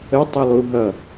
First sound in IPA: ə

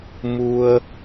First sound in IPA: m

